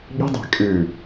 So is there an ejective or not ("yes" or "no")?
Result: yes